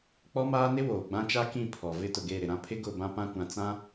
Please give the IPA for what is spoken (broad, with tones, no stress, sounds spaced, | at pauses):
k͡p ɔ˦ m aː˦ n ɪ˦ w oː˨ ɡ͡b ã˦ t͡ʃ a˦ k ĩ˦˨ pʰ ɔ˨ v ɪ˦ t ʊ˨ ɡ eː˦˨ ɾ ɪ˨ ɾ ã˦ pʰ ɪ˦ ɡ ʊ˦˨ b ã˦ p ã˦ kʷ ã˨ t͡s ã˦